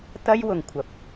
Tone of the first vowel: high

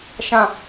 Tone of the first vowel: low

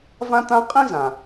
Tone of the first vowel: high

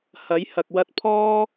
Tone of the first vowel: rising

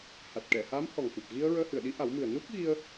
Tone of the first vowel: low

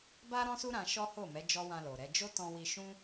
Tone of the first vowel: high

